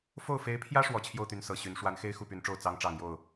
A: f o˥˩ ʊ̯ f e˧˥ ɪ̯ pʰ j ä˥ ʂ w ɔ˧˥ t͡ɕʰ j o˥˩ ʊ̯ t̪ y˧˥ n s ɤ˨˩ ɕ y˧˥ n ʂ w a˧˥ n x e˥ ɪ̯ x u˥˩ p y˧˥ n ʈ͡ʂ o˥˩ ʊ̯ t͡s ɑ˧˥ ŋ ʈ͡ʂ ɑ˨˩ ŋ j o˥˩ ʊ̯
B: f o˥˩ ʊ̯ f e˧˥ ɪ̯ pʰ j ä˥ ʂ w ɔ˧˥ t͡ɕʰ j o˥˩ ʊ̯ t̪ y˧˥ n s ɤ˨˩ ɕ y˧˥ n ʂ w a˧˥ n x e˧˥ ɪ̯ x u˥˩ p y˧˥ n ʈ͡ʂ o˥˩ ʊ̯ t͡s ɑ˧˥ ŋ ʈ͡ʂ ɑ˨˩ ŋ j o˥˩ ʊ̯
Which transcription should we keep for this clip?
A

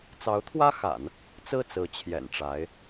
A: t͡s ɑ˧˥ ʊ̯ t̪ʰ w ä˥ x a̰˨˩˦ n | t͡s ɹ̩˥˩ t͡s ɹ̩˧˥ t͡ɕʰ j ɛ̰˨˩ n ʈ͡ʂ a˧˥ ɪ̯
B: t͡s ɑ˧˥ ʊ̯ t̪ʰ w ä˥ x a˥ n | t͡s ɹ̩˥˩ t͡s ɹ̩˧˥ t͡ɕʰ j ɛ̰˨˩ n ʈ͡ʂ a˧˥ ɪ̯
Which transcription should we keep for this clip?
A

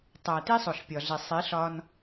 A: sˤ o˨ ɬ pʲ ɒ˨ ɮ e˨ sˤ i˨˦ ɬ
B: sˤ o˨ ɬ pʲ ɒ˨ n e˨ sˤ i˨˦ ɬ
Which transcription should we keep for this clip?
A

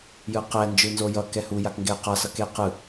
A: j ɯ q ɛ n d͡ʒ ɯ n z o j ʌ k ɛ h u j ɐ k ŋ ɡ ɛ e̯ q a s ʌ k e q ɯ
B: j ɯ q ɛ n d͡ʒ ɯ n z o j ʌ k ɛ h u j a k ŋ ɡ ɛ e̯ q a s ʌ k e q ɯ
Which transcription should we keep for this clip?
B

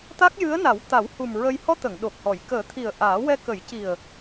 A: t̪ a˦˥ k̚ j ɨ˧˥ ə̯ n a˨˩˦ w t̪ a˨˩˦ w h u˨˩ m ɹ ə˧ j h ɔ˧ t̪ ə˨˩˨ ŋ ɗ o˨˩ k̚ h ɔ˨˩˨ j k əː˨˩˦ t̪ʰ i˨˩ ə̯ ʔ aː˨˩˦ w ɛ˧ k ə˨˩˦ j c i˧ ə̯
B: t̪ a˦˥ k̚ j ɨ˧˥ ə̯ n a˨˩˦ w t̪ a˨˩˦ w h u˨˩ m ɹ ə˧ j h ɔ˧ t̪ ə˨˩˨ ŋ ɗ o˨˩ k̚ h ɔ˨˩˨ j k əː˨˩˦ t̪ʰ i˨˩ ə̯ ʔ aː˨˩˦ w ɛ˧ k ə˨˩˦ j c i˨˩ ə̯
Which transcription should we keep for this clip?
B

